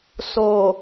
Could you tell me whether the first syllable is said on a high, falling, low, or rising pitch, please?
low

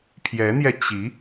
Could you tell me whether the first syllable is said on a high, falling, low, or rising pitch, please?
rising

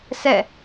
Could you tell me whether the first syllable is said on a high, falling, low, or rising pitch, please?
falling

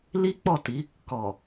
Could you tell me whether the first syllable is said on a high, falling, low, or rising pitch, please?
high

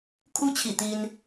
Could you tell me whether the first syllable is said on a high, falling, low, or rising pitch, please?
high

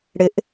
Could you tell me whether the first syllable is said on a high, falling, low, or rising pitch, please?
rising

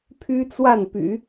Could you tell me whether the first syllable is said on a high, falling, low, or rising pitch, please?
high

